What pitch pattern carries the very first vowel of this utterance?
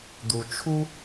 low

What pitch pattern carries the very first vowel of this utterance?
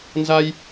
high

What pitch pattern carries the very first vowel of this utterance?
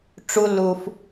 high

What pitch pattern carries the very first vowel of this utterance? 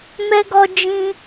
high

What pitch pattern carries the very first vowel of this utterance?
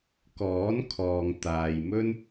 rising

